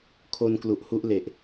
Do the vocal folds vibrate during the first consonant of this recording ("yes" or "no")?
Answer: no